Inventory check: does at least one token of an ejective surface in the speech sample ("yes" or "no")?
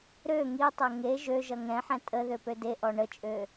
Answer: yes